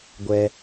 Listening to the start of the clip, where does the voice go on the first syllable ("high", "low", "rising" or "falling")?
high